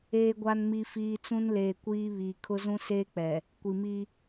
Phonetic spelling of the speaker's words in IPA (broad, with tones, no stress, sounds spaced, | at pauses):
eː˨ ɡʷ a˨ n m i˨ f iː˨ t͡s ũ˦ n l eː˨ kʷ iː˦ β iː˨ kʰ ʊ˦ z ũ˦ s eː˦ k͡p ɛ˨ | kʷ i˨ m i˦